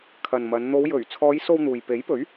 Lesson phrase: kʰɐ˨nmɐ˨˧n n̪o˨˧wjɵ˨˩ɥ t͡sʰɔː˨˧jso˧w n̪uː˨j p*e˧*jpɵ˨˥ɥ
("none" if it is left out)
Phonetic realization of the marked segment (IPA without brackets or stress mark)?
e˨˥